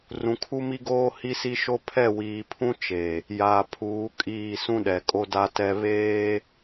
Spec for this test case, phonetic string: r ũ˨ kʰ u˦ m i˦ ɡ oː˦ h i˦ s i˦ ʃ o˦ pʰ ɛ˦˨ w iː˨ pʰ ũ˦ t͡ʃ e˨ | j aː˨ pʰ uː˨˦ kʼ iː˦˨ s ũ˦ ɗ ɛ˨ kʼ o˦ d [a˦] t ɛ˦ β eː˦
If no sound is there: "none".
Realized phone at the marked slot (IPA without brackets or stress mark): a˦